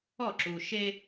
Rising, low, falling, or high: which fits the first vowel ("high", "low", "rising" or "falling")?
falling